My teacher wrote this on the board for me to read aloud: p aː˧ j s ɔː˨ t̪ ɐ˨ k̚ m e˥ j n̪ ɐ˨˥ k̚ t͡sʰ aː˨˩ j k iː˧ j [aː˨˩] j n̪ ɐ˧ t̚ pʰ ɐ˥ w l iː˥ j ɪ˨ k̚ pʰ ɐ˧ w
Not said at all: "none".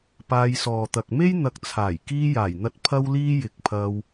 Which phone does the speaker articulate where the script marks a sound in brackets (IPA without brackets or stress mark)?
aː˨˩